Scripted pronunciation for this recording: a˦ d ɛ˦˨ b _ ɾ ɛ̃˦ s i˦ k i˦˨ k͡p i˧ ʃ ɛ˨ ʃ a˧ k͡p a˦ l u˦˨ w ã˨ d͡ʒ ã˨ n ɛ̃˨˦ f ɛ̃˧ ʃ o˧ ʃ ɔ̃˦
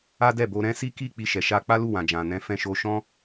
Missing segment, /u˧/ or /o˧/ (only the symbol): o˧